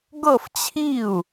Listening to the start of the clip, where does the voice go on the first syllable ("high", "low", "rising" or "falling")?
falling